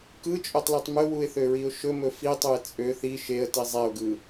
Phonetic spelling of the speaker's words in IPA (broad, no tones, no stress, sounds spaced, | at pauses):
k ɯ t͡ʃʼ ø tˤ l i tˤ m ɵ w u ɪ̯ θ ø ɹ i ʊ̯ ʃ ɵ m ɵ f i tˤ u ɪ̯ t͡sʼ ø θ i ʃ e ə̯ t i zˤ e ʊ̯ ɡ ɯ